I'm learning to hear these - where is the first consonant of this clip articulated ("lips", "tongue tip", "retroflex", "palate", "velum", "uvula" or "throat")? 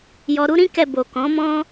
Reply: palate